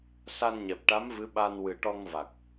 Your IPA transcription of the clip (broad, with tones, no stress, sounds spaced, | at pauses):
s a˧ n ɲ ɛ˨˩ p̚ ʈ a˧˥ m v ɨ˧˥ ɓ a˧ n w ɨ˨˩ ʈ ɔ˧ ŋ v a˨˩ k̚